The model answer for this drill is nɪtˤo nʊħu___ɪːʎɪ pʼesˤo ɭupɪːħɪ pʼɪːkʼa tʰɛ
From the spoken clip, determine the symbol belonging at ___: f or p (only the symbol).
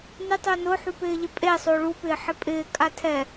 p